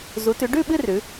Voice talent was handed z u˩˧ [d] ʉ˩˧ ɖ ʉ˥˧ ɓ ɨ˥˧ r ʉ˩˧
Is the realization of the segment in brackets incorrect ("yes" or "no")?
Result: yes